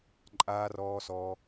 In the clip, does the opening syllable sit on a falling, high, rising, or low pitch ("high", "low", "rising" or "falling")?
low